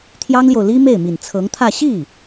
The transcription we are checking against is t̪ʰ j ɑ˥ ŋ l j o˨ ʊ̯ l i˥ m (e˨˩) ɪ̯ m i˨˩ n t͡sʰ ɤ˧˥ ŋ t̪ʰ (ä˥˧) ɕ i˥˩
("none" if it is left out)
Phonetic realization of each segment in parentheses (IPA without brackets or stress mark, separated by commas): e˥˩, ä˥˧